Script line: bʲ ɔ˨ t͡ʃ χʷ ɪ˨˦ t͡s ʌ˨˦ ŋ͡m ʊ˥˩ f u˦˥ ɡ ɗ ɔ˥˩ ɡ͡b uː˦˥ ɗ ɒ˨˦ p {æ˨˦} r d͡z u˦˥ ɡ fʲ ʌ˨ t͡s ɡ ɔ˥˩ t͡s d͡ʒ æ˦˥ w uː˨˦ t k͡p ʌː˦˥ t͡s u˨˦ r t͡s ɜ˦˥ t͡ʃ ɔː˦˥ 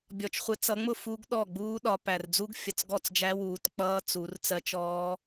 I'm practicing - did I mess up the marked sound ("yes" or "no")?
yes